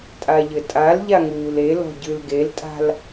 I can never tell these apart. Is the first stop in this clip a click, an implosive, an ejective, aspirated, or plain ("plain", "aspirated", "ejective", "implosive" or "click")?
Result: ejective